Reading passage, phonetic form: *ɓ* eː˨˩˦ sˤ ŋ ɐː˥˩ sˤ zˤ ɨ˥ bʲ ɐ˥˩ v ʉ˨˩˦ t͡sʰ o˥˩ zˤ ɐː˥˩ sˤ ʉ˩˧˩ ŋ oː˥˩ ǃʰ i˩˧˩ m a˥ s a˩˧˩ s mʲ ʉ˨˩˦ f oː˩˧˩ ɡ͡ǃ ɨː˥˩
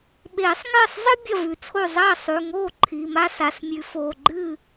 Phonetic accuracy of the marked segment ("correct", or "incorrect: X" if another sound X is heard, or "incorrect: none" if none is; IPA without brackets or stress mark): correct